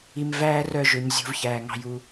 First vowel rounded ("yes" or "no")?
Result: no